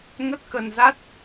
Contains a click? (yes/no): no